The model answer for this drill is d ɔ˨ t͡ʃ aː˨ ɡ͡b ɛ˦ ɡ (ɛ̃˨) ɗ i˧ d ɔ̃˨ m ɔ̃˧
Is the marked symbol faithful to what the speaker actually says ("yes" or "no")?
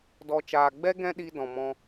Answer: no